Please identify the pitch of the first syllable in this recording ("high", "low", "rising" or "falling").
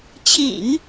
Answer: low